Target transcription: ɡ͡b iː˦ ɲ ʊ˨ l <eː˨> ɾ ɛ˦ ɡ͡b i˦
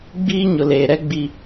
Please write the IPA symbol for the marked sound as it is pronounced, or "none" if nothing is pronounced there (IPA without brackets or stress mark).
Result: eː˨